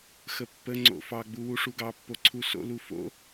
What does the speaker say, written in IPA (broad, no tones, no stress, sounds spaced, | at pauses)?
x ə pː ə ŋ͡ǀ o̰ f ɑ ɡ͡b u w u ʂ u ɡ ɑ pː o ǀʰ u s o̰ l u f o̰